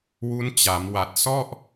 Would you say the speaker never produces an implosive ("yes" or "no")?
yes